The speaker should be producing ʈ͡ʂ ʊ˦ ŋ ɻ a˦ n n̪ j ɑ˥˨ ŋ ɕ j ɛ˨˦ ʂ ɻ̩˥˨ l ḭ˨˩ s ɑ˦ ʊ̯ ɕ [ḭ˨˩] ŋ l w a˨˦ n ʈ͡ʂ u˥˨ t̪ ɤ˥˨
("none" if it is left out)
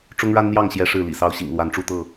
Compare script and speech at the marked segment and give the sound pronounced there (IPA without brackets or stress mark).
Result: ḭ˨˩